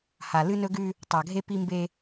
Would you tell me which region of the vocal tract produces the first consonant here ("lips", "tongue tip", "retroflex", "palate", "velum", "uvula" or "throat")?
throat